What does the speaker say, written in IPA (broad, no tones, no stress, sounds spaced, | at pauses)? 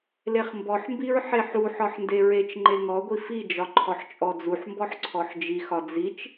l e χ m b ɔ ħ m b i ɹ ħ e ħ u ħ ɒ ħ n d e ɹ e t͡ʃ ŋ͡ǃ e ŋ ɔ ɡʷ i f i d͡ʒ ɒ ǃʰ ɔ ħ t͡ʃʼ ɔ d͡z u ħ m b ɔ ħ ǀʰ ɔ ħ d͡ʒ i x ɒ d͡z i t͡ʃ